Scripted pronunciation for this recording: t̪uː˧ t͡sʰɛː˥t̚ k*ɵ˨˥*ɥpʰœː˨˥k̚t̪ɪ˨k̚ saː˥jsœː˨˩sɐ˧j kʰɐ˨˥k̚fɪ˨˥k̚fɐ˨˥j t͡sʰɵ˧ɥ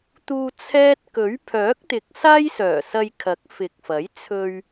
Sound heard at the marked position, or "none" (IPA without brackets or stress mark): ɵ˨˥